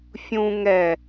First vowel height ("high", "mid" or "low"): high